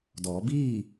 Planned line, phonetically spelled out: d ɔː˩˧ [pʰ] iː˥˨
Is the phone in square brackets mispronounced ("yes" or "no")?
yes